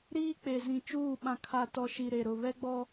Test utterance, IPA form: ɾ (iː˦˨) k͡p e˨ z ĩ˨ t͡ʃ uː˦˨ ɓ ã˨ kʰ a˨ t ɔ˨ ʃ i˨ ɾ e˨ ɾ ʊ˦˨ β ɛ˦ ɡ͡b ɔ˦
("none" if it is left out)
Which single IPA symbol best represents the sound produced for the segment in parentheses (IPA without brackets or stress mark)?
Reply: iː˦